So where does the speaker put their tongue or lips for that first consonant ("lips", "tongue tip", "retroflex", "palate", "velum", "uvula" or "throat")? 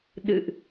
tongue tip